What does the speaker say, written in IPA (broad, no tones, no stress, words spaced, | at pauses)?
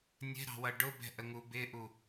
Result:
nʲɛ̤ɾɑ̤wʌ ɖʊbɛ̤ʔəŋu bɪʔu